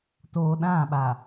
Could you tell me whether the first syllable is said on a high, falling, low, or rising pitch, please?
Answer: low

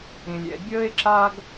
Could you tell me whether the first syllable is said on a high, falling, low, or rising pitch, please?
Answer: low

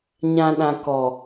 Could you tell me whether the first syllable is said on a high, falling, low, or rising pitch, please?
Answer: low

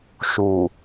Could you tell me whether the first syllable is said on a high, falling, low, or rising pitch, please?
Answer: low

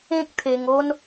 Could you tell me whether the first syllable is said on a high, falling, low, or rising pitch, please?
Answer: high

